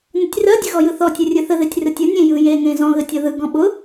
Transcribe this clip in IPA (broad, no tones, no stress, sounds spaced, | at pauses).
n ə tʲ r ɜ dʲ ə ɣ ɔ j ɯ θ ɔ tʲ ʊ rʲ ɯ θ ə ð e tʲ r ɯ tʲ ʊ nʲ ẽ j ɯ j e ŋ ẽ z ɔ̃ ɣ ə tʲ ɔ ð ɯ ɡ ɔ̃ ɓ ʊ